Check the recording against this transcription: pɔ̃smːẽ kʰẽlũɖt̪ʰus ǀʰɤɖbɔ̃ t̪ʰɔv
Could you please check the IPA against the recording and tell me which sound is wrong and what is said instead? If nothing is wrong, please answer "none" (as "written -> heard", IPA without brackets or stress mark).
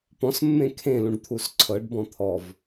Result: none